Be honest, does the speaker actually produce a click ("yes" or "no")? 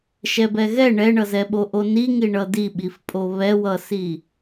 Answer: no